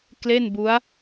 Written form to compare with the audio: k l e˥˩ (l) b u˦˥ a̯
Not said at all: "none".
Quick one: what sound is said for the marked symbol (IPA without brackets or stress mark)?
n